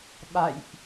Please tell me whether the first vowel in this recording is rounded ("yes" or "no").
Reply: no